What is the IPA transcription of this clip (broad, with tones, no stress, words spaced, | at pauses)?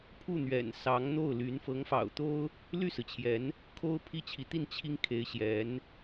pʰu˥˩n̪ɥɛ̰˨˩nsɑ˧˥ŋn̪o˥˩ʊ̯ ly˧˥n fɤ˧˥ŋfɑ̰˨˩ʊ̯ t̪o˥ʊ̯ | ly˥˩sɹ̩˩t͡ɕʰjɛ˧˥n | kʰo˥ʊ̯pʰi˥˩t͡ɕʰi˧˥t̪i˥˩n t͡ɕʰi˥ŋkʰe˧˥ɪ̯ɕjɛ˧˥n